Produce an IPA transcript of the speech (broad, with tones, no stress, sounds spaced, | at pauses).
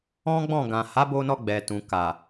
ɔ̃˦ ɡ͡b ɔ̃˦˨ ɡ ã˨ h a˨˦ b o˧ n ɔ˧ ɡ͡b ɛ˨ t ũ˨ k a˨